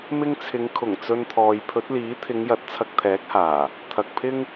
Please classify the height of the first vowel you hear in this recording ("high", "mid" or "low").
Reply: high